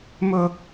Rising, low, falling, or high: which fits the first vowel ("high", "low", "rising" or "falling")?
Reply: high